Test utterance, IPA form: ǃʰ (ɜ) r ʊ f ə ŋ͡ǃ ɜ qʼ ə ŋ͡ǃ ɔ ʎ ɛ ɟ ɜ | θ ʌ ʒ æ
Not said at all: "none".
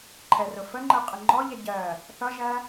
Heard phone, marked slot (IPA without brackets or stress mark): ɛ